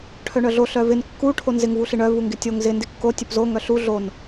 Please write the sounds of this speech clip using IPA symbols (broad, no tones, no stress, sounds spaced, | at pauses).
ʈʰ œ ɳ œ ɮ o ɬ œ v ɪ n kː u ʈʰ o n z ɪ ŋ v u ɬ ɪ ɳ œ v u ŋ ɡ ɪ tʲ o ŋ z ɪ n d ɪ kː o tʲ œ p z o ŋ œ ɬ u ɮ o n